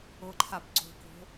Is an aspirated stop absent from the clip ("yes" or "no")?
no